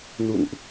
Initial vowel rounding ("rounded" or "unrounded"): rounded